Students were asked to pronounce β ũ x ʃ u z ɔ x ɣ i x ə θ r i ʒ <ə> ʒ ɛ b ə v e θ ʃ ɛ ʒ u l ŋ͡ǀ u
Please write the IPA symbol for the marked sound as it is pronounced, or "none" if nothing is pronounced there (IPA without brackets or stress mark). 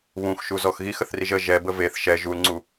ə